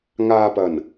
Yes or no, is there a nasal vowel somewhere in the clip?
no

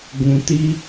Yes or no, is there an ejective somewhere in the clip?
no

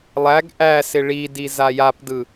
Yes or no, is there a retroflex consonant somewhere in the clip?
yes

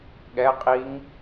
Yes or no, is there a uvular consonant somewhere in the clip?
yes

